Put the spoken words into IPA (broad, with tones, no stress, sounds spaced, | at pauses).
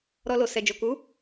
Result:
ɾ ɔ˧ l o˨ s ɛ˨ d͡ʒ o˨ k u˨˦